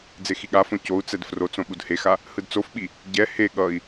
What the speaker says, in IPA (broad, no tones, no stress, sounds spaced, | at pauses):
d͡z e x i ɠ a f õ c o u̯ t͡s ɛ d f r o t͡s õ ɓ u d h e x a | h ɯ d t͡s o f ɓ i | ɟ ɛ h e ɠ ʌ i̯